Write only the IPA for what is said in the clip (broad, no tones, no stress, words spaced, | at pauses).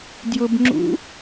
djʊbŋ͡ǁṵ